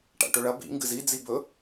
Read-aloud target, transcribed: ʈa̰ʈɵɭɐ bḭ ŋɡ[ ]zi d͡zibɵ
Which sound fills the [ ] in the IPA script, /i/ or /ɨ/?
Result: ɨ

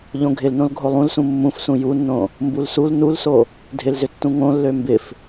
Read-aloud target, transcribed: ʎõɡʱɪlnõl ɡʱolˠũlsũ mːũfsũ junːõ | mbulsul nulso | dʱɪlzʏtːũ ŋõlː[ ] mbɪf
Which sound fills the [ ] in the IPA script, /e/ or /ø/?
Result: ø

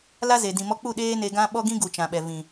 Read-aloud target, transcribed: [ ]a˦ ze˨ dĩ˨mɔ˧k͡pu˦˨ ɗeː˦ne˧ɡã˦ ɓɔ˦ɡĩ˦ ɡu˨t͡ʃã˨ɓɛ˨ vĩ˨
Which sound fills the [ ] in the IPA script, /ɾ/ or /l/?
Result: l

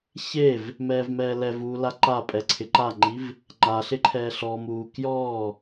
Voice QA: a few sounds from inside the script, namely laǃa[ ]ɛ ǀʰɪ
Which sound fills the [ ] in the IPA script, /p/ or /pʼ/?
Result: pʼ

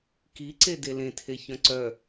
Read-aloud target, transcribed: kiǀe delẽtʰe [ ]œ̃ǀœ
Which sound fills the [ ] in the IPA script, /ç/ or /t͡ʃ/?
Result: ç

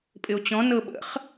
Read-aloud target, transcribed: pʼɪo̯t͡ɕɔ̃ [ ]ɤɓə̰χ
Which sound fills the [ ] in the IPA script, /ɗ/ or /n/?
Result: n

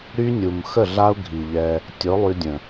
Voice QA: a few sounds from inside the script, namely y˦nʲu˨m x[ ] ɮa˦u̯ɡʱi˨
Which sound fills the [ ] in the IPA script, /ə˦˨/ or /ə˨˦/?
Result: ə˦˨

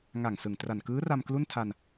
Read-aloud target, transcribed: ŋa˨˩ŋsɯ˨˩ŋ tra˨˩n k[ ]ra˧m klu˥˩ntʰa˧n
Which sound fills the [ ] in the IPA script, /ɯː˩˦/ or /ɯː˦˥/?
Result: ɯː˦˥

